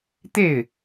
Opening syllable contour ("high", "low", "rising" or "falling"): falling